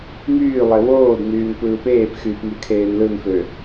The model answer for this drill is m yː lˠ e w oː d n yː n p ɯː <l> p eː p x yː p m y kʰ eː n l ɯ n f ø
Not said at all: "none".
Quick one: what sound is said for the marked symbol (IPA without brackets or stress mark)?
none